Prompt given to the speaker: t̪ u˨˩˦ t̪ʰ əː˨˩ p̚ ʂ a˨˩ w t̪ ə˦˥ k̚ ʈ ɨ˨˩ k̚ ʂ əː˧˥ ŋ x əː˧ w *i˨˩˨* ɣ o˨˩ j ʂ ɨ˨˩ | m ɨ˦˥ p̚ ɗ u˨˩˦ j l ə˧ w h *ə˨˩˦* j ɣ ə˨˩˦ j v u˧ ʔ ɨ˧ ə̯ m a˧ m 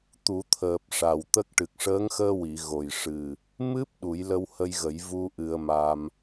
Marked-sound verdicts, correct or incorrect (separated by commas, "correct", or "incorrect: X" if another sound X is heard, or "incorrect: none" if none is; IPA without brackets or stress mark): correct, incorrect: ə˧